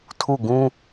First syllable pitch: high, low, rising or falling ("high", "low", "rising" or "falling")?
falling